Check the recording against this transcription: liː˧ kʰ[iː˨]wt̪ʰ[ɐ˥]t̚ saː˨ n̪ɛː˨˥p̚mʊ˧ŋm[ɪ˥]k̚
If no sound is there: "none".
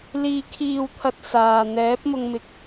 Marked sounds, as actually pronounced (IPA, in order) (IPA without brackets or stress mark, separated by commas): iː˨, ɐ˨, ɪ˧